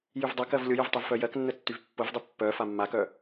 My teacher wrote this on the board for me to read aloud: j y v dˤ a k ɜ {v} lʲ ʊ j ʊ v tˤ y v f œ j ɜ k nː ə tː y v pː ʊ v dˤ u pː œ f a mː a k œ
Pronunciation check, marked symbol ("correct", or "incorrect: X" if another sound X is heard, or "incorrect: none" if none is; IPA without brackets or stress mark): correct